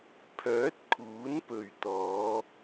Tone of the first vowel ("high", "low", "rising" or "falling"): rising